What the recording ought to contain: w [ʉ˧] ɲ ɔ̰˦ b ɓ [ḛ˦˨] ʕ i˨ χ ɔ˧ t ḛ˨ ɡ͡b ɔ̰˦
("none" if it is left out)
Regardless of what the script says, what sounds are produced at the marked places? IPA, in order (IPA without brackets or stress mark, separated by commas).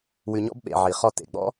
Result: ʉ˧, ḛ˨